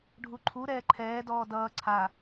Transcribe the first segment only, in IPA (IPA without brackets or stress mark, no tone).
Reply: ɖʱ